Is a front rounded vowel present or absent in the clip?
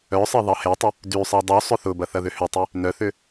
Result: present